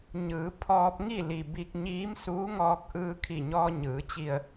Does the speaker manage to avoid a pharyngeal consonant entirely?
yes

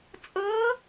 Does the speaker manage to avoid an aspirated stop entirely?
yes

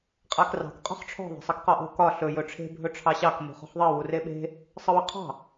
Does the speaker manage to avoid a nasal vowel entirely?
yes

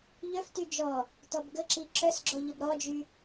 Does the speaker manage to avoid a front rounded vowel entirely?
no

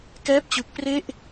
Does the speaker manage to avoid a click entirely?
yes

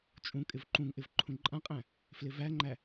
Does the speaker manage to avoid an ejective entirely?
no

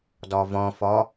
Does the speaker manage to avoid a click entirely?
yes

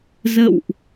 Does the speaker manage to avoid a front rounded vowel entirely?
yes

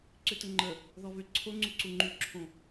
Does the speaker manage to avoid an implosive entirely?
yes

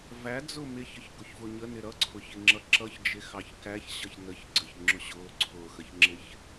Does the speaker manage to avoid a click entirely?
no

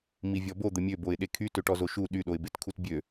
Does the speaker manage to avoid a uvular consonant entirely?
yes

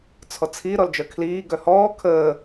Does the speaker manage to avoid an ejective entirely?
yes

